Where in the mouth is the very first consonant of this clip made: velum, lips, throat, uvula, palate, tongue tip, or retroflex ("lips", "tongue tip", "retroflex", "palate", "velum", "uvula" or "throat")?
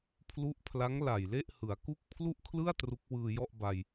lips